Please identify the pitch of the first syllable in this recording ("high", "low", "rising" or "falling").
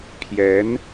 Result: rising